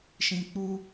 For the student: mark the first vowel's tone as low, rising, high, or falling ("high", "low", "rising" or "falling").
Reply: high